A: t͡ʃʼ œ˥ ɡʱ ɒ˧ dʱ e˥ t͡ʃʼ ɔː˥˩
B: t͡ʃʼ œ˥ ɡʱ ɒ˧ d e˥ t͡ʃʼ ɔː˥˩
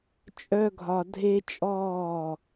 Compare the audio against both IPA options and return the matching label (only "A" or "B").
A